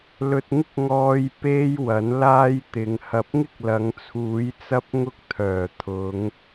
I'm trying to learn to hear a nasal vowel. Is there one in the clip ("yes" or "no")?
no